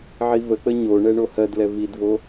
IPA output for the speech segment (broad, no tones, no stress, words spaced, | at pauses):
ʕivək͡pə ɲoɳɛ ɳohɜdlɛ vidvo